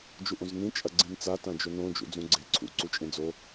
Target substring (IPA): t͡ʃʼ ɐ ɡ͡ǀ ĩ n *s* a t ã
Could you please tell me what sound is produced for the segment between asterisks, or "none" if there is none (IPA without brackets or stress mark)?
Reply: t͡s